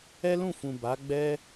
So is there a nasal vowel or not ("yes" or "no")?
yes